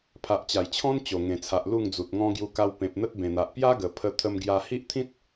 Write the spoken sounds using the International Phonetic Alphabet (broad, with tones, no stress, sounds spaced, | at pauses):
pʰ a˨ ʔ t͡ɕ a˨˩ j t͡ɕʰ ɔ̃˦ n t͡ɕ o˨˩ ŋ ẽ˨˩ t͡sʰ a˨ ʔ l u˥˧ ŋ d͡z u˨ t̚ ŋ ɔ̃˦ ɡ j u˧ k a˧ w p ẽ˨ p̚ n̪ ə˦ t̚ b ẽ˨˩ n̪ a˨ ʔ p j a˦ ɡ ə˨˩ pʰ ə˧ t̪ʰ ə˧ m ɡ j a˧ h i˦ ʔ t̪ʰ ĩ˦ t̚